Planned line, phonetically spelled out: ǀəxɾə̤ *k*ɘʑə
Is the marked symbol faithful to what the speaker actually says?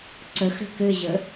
yes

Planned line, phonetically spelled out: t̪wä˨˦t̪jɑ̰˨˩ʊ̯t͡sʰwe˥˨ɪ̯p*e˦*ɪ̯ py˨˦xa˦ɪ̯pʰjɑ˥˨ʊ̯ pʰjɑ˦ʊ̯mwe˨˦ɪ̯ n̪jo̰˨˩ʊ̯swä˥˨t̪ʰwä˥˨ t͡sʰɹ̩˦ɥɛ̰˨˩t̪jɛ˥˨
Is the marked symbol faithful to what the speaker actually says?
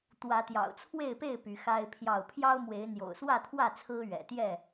no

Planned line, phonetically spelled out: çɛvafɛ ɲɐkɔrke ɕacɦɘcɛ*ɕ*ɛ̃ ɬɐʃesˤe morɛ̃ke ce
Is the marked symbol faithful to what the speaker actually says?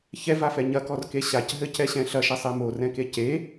yes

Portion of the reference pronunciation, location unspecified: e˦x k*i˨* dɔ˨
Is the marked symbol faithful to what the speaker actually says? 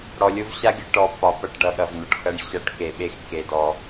no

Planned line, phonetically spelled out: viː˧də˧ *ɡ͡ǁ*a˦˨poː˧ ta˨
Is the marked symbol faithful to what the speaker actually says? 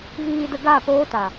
no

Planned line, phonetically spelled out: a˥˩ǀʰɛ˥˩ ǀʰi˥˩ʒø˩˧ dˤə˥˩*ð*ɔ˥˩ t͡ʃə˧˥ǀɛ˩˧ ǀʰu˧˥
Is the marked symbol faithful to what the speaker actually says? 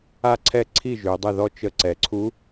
yes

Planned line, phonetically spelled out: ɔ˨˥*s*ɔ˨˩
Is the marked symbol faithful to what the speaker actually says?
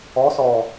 yes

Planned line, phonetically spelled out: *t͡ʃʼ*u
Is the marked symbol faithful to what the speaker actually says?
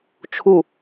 no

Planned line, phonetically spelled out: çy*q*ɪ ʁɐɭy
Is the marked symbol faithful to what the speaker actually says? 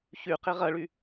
yes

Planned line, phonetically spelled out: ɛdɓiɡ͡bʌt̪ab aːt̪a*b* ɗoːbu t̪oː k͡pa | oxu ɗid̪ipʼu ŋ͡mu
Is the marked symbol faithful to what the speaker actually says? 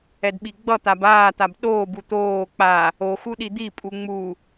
yes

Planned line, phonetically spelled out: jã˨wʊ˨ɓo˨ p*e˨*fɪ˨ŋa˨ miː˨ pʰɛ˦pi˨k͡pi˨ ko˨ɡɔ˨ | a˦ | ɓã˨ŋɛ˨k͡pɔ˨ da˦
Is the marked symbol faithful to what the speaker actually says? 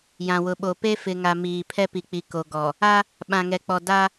no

